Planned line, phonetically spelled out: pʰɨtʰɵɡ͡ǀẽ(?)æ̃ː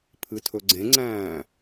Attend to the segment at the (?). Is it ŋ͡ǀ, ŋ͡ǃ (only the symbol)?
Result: ŋ͡ǀ